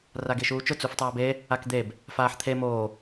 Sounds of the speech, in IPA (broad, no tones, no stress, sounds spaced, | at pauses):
r a ɡ e ʃ uː t͡ʃ ʊ t͡s u f tˤ aː b e | a k d̪ e b | f aː ħ t̪ʰ e m oː